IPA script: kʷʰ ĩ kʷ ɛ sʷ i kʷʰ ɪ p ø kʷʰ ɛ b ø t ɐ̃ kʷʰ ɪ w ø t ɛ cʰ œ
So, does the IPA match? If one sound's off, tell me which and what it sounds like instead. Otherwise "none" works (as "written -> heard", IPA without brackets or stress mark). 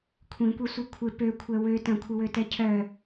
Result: b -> w